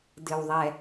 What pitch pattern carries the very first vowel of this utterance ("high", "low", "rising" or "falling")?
low